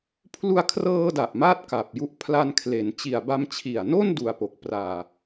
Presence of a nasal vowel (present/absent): absent